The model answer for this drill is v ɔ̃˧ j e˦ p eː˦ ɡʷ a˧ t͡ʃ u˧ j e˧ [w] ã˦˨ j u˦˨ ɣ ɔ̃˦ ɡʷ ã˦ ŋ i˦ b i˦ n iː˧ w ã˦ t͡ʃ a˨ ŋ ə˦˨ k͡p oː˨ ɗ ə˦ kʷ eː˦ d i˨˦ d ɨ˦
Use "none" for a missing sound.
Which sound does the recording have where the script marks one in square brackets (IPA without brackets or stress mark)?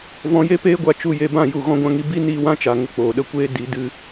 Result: b